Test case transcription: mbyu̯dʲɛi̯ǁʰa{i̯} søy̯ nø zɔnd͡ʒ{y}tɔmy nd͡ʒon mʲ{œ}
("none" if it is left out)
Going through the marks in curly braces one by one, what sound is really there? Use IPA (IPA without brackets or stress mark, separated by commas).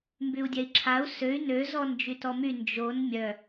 u̯, y, œ